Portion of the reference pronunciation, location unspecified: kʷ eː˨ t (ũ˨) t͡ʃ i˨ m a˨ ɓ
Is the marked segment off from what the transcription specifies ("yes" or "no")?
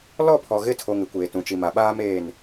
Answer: no